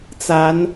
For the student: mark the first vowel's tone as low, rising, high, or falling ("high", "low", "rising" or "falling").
rising